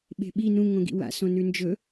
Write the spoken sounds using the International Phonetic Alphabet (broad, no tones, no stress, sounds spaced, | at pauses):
ɓ e̤ ɓ i n ũ ŋ õ ɡ ḭ w a̰ s õ n ʉ n d͡ʒ ɵ